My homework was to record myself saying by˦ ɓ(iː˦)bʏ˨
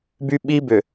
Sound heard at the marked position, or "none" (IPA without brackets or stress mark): i˦